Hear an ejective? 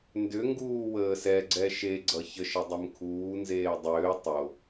no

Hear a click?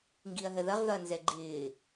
yes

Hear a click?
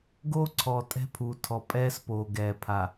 yes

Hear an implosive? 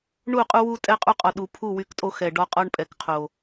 yes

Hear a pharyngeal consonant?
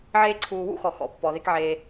yes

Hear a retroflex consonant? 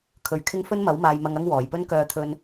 no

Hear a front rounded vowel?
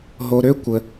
yes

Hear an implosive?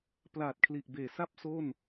no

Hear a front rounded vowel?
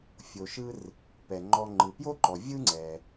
no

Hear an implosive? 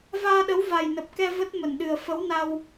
yes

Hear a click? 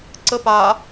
yes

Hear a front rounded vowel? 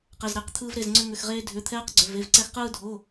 yes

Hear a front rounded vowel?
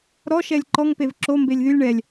yes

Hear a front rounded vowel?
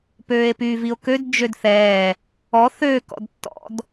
yes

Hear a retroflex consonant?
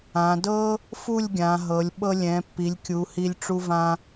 yes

